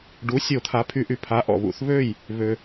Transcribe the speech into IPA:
ɖ u˩˥ sʲ o˨˩˦ t̪ʰ a˩˥ pʰ y˨˩˦ ʔ y˩ pʰ a˩˥ ʔ ɔ̰˩ β ṵ˨˩˦ θ β ø˥˩ j | β ø˩

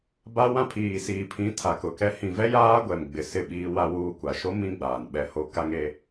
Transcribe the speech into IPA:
b a˦ w ã˦ pʰ iː˨ s iː˨ pʰ ĩ˨˦ tʰ a˨ k ʊ˨ k ɛ˦ h ĩ˨ v ɛ˦ j aː˦ ɡʷ ɛ˨ m ɡ͡b ɪ˨ s ɪ˦˨ ɓ iː˦ w a˦ w uː˦ kʷ a˨ ʃ o˦ m ĩ˦ ɡ͡b aː˨ n ɓ ɛ˦ h o˦ k a˦ ŋ e˦

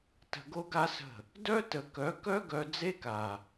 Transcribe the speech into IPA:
t ə̤˧ ɡ o˦ ɡ a˦ s ə̤˦˨ | d œ˦ t ə˨ k œ˨˦ k œ˦ ɡ œ˧ d͡z e˦ k a˨

